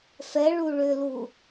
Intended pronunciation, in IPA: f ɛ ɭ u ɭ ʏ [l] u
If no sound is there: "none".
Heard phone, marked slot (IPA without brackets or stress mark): l